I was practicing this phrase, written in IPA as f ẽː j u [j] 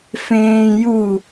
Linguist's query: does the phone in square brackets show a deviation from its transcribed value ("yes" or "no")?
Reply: yes